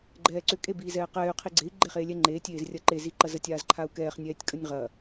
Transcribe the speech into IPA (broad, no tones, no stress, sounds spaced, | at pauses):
ɡ͡ǃ ɛː ǀ ʏ kʼ e b iː z ɛː q ɛː y̯ qʰ i ɡ͡ǀ e i̯ ɡ͡ǃ e χ eː lʲ ɛ ŋ͡ǃ eː tʲ eː z rʲ ɐ ǃ e z i ǃ ɐ z ə tʲ aː z ǃʰ a u̯ k ɛː χ nʲ ɛː tʲ kʼ ə nʲ ʁ ɐ